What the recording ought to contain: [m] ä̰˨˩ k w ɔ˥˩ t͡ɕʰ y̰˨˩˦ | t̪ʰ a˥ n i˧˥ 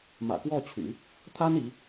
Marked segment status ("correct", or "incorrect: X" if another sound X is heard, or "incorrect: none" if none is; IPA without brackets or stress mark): correct